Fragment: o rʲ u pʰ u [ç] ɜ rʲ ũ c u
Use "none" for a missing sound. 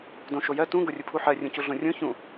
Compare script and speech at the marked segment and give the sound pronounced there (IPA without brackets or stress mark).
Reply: ħ